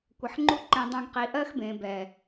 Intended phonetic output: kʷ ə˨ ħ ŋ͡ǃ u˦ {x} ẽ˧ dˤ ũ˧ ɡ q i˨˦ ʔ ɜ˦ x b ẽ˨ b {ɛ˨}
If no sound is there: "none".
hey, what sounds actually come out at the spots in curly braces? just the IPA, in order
ǃ, ɛ˨

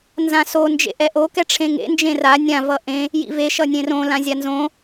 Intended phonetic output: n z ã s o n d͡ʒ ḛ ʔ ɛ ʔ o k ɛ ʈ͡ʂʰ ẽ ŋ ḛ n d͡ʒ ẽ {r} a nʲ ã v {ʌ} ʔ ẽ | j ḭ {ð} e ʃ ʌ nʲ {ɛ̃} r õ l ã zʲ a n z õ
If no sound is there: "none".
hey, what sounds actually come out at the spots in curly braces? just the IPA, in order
r, ʌ, v, ẽ

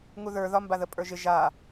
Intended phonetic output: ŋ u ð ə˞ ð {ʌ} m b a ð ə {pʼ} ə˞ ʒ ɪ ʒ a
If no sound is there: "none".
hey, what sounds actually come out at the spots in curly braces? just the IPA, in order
ɒ, pʼ

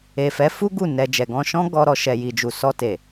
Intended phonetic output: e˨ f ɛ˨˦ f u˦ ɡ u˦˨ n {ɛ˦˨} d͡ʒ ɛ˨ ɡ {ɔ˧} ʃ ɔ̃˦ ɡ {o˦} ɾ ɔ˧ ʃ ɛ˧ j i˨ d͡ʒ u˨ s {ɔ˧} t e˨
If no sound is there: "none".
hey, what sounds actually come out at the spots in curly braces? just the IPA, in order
ɛ˧, ɔ̃˧, ɔ˦, ɔ˧

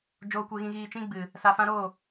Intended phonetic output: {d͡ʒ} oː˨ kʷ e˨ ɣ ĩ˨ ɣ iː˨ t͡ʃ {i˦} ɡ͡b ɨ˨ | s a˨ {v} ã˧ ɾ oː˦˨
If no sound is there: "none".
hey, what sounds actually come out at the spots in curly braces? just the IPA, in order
d͡ʒ, ĩ˦, f

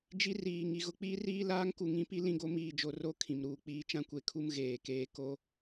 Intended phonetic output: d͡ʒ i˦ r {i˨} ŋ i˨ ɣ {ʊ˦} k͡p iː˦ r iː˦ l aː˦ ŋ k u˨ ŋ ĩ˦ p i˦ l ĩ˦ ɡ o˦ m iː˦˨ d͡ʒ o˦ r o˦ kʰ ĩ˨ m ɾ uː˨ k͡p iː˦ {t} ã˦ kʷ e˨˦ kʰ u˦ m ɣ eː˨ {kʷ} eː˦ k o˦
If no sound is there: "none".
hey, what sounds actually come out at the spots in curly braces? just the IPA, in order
iː˨, ʊ˦, t͡ʃ, k

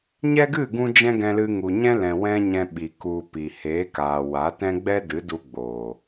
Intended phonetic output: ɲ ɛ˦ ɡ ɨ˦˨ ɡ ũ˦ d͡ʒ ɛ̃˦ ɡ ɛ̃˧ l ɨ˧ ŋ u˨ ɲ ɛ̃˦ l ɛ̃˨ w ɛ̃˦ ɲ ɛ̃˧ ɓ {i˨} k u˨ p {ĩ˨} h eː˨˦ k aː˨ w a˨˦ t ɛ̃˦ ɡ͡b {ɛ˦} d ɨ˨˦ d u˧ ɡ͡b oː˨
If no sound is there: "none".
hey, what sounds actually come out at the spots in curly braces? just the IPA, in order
i˨, i˨, ɛ˦

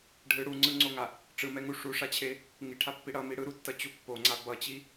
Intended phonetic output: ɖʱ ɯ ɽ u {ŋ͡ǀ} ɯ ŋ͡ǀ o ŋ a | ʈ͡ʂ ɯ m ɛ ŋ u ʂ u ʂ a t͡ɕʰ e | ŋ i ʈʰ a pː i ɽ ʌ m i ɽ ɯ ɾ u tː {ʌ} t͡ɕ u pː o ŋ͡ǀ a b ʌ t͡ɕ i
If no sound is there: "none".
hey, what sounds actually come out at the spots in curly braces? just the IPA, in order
ŋ͡ǀ, ʌ

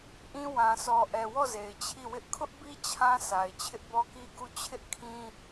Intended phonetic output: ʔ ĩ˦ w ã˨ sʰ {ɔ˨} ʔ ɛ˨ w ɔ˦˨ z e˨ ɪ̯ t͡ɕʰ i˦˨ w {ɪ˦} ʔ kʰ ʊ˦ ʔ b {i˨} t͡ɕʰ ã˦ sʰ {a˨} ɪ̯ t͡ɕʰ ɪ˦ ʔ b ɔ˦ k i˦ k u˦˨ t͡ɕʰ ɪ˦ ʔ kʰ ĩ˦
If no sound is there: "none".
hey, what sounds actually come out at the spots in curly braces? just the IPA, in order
ɔ˨, ɪ˦, i˦, a˨

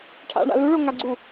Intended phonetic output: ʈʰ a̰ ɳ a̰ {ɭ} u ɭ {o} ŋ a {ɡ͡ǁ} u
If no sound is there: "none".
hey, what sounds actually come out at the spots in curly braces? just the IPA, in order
l, o, ɡ͡ǀ

